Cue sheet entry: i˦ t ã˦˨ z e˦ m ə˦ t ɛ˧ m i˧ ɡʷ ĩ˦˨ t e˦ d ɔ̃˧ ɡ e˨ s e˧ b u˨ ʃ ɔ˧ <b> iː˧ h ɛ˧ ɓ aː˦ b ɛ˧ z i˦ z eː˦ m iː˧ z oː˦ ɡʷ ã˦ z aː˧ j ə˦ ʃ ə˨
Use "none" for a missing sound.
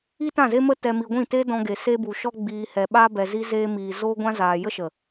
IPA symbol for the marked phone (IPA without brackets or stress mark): ɡ͡b